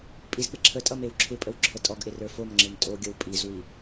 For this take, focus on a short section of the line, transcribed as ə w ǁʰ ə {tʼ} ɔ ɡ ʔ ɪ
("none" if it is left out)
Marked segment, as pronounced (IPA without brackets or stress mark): tʼ